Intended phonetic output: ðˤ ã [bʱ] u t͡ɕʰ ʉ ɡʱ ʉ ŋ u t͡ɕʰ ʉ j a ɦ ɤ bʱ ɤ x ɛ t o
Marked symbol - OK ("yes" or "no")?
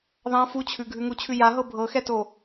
no